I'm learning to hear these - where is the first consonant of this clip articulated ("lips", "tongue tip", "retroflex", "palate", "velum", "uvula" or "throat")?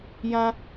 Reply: palate